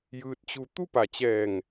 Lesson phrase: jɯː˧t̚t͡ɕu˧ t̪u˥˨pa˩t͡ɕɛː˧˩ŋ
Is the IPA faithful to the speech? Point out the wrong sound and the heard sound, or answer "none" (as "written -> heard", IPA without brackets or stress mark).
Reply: none